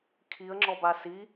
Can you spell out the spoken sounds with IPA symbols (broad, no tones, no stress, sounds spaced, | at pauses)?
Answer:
kʰ i ə̯ ŋ͡ǁ ɔ b a s i